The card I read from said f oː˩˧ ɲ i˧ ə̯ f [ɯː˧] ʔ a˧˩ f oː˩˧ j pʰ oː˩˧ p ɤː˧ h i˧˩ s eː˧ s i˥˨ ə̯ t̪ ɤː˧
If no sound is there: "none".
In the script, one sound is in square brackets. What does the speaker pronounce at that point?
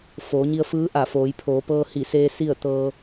ɯː˧˥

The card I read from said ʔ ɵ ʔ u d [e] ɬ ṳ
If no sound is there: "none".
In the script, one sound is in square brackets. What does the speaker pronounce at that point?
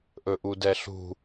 ɛ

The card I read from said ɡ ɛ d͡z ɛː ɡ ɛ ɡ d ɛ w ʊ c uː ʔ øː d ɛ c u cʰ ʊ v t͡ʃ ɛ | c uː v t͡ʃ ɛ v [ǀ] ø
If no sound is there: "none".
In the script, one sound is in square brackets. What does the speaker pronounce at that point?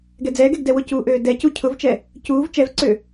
ǀ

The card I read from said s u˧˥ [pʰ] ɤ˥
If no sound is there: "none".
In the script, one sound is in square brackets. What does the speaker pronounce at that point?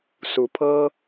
pʰ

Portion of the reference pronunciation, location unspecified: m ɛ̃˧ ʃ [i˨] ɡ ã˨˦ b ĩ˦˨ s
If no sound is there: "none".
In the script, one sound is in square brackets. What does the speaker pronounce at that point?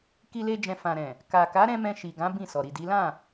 i˨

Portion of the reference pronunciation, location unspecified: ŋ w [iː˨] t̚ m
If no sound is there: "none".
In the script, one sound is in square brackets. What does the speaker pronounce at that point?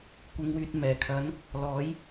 yː˨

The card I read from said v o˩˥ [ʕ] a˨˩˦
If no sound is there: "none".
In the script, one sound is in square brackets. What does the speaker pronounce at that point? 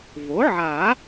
ʕ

